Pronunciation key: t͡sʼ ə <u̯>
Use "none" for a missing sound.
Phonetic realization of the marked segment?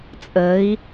i̯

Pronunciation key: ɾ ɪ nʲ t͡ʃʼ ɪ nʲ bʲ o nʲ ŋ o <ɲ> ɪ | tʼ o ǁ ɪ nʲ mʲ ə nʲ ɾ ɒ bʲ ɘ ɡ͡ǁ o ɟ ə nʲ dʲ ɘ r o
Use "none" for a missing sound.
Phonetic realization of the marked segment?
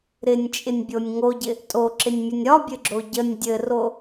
ɟ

